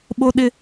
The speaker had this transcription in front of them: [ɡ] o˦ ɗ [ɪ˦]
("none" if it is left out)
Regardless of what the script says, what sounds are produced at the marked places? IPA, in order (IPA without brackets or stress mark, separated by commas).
ɓ, ɪ˦